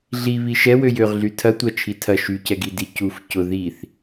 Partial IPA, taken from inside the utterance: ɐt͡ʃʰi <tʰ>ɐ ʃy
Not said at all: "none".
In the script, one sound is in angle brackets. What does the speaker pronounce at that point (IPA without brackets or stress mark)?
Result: tʰ